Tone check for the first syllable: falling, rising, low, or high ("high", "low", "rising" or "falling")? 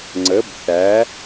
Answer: rising